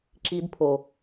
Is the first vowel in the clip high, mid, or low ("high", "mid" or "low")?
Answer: high